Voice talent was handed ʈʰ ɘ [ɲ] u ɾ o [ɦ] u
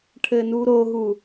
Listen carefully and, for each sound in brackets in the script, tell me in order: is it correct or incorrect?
incorrect, correct

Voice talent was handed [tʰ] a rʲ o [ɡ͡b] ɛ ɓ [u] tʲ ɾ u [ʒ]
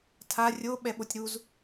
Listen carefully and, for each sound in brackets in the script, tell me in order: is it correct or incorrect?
correct, incorrect, incorrect, incorrect

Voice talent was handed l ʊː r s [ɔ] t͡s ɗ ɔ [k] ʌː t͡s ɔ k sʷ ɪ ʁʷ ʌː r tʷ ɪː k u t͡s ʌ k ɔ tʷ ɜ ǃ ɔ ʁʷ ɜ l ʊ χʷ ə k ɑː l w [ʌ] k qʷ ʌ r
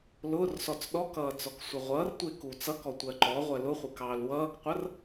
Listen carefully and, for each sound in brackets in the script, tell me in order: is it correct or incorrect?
correct, correct, incorrect

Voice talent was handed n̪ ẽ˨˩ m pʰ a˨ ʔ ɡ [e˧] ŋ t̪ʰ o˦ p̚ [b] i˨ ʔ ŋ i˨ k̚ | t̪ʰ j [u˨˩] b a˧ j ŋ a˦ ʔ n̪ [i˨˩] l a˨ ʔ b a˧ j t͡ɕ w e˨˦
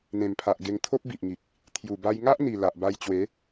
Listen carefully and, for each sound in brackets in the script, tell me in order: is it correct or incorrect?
correct, correct, correct, correct

